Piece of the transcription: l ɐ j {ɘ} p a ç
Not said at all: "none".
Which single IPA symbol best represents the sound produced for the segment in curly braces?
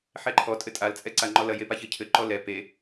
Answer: e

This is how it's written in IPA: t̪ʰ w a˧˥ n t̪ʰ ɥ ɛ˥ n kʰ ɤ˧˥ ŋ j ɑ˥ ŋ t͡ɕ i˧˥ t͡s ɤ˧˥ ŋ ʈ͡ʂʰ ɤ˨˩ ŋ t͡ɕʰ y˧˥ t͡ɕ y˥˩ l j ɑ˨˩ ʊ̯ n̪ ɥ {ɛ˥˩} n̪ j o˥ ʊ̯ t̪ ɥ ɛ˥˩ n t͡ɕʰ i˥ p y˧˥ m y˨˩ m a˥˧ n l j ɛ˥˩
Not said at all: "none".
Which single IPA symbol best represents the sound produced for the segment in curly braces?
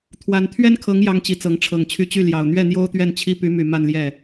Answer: ɛ˥˩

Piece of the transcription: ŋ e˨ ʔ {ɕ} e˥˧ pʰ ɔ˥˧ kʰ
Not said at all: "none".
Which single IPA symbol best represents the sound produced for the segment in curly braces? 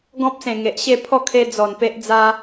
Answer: ɕ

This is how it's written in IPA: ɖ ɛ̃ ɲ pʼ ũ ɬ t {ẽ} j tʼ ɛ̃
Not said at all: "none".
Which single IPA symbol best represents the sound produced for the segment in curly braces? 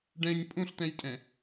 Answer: ɛ̃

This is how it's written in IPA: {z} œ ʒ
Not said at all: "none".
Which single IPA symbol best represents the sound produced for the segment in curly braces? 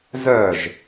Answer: z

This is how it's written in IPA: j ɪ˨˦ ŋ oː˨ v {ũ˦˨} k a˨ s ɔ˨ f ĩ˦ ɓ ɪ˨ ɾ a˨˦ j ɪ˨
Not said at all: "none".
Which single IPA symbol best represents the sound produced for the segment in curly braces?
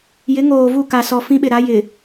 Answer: u˦˨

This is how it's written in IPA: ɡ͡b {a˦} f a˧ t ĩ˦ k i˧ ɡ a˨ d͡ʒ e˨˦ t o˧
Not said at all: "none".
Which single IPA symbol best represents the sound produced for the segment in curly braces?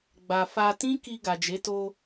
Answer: a˧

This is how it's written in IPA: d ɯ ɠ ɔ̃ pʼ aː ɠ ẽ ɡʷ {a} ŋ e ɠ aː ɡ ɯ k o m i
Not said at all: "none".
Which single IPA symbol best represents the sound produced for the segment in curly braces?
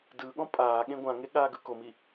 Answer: ã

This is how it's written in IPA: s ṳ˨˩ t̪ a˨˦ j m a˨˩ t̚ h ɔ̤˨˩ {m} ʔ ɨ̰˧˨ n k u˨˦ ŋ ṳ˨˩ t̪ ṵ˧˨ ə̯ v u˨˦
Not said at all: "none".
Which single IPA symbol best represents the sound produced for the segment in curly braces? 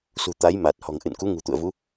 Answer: ŋ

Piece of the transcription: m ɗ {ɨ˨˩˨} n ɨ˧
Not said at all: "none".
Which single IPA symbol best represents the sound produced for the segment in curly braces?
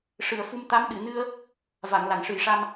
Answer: ɨ˨˩˨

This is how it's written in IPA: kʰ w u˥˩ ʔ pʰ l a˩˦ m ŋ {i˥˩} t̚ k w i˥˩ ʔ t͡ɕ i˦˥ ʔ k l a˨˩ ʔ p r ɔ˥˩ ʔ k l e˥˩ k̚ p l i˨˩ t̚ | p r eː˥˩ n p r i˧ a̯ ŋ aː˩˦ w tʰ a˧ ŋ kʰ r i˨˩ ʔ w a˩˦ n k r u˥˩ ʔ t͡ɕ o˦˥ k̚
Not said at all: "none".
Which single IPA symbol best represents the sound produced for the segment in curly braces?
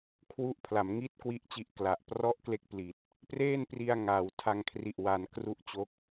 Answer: i˥˩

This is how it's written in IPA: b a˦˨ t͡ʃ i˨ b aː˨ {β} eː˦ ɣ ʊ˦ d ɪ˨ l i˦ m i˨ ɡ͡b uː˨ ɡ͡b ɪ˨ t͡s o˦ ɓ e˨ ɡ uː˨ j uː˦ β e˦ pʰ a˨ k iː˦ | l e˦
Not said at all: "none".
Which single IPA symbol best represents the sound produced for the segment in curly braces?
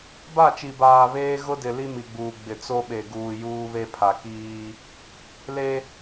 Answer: β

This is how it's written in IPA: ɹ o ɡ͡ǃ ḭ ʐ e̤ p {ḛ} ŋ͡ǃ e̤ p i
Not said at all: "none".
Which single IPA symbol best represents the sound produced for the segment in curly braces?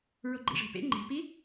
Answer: ḛ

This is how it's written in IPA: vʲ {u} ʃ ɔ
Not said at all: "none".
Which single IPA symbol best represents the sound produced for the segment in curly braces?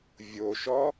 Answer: o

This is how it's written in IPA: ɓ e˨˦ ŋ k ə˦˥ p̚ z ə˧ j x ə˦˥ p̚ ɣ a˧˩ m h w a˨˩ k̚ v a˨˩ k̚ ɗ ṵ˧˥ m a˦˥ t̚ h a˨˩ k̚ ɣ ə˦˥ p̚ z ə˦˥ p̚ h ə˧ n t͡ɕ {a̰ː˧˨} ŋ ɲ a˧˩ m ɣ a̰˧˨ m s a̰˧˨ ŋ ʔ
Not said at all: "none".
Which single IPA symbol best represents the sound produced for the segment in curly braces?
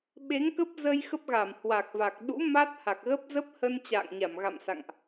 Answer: a̰ː˧˨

